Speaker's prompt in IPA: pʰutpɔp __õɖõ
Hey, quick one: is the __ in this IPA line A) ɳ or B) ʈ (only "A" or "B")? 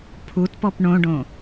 A